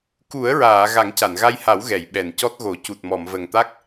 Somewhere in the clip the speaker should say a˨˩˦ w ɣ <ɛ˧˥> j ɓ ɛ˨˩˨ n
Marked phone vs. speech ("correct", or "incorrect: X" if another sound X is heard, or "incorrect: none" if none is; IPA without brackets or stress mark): incorrect: ɛ˨˩˨